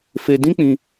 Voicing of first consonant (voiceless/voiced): voiceless